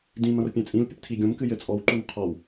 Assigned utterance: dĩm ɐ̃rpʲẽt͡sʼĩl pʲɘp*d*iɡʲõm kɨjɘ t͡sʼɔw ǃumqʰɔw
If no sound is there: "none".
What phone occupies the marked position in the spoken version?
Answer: tʰ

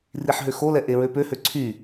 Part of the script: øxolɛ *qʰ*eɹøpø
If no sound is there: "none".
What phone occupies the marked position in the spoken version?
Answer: ʔ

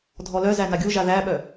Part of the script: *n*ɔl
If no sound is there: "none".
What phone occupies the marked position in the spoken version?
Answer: dʱ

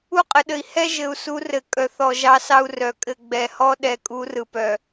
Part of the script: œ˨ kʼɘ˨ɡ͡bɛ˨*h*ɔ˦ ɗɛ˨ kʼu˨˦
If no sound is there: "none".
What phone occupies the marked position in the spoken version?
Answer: h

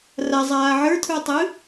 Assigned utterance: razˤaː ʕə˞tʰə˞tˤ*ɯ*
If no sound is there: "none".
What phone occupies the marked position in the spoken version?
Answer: ɯ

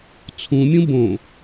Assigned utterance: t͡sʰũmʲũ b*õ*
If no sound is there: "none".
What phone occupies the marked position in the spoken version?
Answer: õ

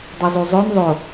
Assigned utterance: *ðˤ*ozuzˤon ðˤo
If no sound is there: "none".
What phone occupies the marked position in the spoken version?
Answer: dˤ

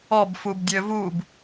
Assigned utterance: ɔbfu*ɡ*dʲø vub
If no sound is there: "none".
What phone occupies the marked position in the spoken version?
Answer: b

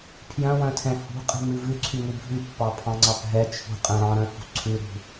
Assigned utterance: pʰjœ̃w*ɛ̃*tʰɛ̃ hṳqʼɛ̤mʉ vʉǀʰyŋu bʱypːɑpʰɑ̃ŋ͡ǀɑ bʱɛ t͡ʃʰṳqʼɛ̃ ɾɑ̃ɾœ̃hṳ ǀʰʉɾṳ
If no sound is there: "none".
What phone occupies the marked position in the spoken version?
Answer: œ̃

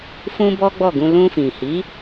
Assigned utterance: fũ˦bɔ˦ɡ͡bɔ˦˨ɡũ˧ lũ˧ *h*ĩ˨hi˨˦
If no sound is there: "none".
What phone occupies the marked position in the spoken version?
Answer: f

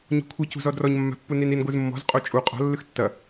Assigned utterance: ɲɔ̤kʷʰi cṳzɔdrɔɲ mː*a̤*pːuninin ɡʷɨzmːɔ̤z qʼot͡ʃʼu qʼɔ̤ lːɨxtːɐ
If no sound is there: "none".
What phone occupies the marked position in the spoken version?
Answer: a̤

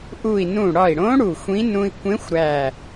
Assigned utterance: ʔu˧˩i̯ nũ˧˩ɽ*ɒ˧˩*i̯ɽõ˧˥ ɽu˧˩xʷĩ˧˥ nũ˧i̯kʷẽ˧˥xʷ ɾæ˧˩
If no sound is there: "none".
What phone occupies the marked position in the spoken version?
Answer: ɒ˧˩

